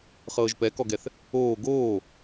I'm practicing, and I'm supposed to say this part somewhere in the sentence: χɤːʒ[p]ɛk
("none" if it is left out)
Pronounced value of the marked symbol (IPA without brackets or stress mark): p